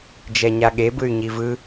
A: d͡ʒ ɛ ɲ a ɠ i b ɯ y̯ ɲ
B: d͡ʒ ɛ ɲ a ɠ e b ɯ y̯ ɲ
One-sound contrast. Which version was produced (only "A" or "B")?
B